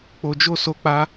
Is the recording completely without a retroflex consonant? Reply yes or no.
yes